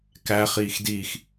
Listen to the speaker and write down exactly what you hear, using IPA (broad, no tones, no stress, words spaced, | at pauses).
kæχiːx dix